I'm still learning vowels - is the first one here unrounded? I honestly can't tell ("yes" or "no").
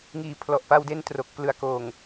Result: yes